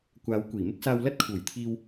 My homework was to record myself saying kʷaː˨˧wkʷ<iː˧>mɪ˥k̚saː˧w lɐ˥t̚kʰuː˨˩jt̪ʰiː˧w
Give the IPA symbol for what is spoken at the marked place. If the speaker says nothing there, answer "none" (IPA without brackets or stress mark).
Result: iː˨˩